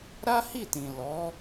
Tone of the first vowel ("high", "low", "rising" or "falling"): high